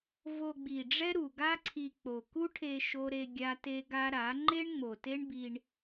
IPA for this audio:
v o˧ ɡ͡b i˨ ɖ͡ʐ ɛ˦ ɾ u˨ ɡ a˦ ǀʰ i˧ k͡p o˨ k u˦ ʈʰ e˧ ʃ o˦ ɾ e˧ ɡʲ a˦ t e˦ ɡ a˦ ɾ a˨˦ ŋ͡ǃ e˦ ɳ ŋ͡m o˨ t e˦ ɳ b i˧ ɳ

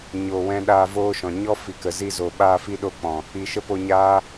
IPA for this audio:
ɲ o˨ w ɛ̃˧ ɗ aː˧ v oː˦ ʃ ɔ̃˨ ɲ ɔ˦ f i˨ k ə˨ z i˧ z o˨ ɓ aː˧ f i˧ ɗ o˦ k͡p ɔ̃˨ | i˨ ʃ ə˦ p o˧ ɲ aː˦

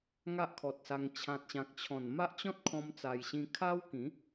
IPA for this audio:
ŋ a˦ ʔ kʰ ɔ˨ t̚ s a˧ ŋ t͡ɕʰ ã˨ t̚ ɕ ã˨ k̚ t͡ɕʰ ɔ̃˨˩ n m a˦ ʔ t͡ɕ ɔ̃˦ t̚ kʰ ɔ̃˧ m t͡s a˧ j ɕ ĩ˧ kʰ a˦ w k ĩ˨˦

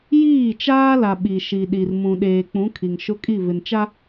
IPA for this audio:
j iː˦˨ t͡ʃ aː˦ l a˨ ɓ i˨ ʃ i˨ ɗ i˨ r m ũ˨ ɗ eː˨ k͡p ũ˨˦ kʰ i˨ ŋ ʃ ʊ˦ kʼ i˦˨ v ɪ˨ n t͡ʃ a˦

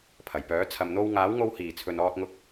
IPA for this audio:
pʰ ɐ˨˩ j p œː˨˥ t͡sʰ ɐ˨ m n̪ o˧ w ŋ aː˨˥ w ŋ o˧ w h iː˨˩ t͡sʰ ɵ˨ n ɔː˧ t̚ ŋ ʊ˧ k̚

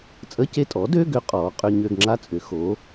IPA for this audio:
t͡sʼ ə˧˥˧ c e˦˨ tʼ ɔː˩˥ d ø˧˥˧ ɡ ʏ˦˥ qʼ ɔː˩˥ qʼ ʏ˧˥˧ ɲ ø˦˨ ɡ ŋ͡ǁ a˦˥ t͡sʼ ʏ˩˥ x o˩˥

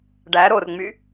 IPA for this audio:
ɖ æ ɾ o r ŋ͡m y

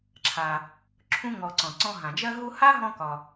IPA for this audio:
ǁʰ a˩ | ǁʰ ũ˧ ŋ ɔ˩ ǀ ɔ̃˩ ǀ ɔ̃˧ ɦ ã˩ d͡ʒ ɜ˧ ɦ u˧ h a˥ ɦ ɔ̃˧ k ɒ˩

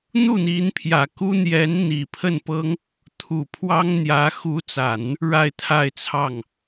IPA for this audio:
n̪ u˥˩ n̪ i˧˥ n pʰ j ä˨˩ k u˥ n̪ j ɛ˧˥ n n̪ i˨˩ pʰ ə˥˩ n p ɤ˥ ŋ | t̪ʰ u˨˩ pʰ w ɑ˥ ŋ n̪ j ä˧˥ x u˧˥ t͡s a˨˩˦ n | ɻ a˥˧ ɪ̯ t̪ʰ a˥˧ ɪ̯ t͡sʰ ɑ˥˩ ŋ

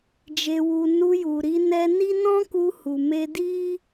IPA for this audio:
d͡ʒ e˨ w u˨ n u˧ j u˨ ɾ i˧ n ɛ˧ n i˦ n ɔ̃˦ k u˧ h u˨ m e˧ d i˦

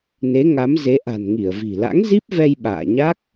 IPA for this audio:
n e˨˦ ŋ a˨˦ m z e˨˦ ʔ a̤˨˩ n ŋ i˧˩ ə̯ v i̤˨˩ l a̰˧˥ ŋ z i˦˥ p̚ v ɛ˧ j ɓ a̰ː˧˨ ɲ a˦˥ k̚

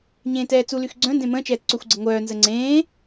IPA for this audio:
ɲ ẽː t ɛː t͡s u l y x ɡ͡ǀ œ̃ n d ẽ m ə̃ː t͡ʃ ɛː t͡s ǀ ø xʷ ɡ͡ǀ ə ŋʷ œː n z ə ŋ͡ǀ ẽː

